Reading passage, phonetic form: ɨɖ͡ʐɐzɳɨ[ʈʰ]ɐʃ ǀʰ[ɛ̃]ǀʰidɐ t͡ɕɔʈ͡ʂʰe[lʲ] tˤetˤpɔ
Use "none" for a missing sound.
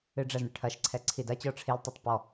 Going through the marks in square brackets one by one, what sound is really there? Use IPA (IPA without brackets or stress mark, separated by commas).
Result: ʈʰ, ɛ, l